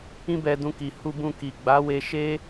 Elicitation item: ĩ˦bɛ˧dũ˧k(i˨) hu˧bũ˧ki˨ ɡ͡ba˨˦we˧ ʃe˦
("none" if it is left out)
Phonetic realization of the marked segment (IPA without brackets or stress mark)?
i˨